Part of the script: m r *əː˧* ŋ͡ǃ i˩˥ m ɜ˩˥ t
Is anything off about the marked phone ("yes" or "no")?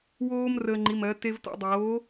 no